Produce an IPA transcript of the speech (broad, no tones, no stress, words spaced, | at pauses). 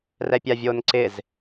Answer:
rɛpʲavʲoːnǀɪz